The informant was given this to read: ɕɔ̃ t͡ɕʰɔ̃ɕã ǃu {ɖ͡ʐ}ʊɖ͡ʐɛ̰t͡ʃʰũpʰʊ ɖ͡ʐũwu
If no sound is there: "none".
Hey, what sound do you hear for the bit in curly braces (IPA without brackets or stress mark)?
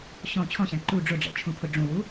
ɖ͡ʐ